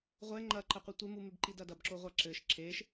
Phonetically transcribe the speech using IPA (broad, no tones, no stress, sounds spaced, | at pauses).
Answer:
ʁʷ ɛ ŋ͡ǃ ɐ ǃ ɐ qʷ ɛ tʷ e m u m e b ǃ i d ɐ d ɐ b ǁ o ʁʷ a ǁ ɘ ʃ ǁ e ʃ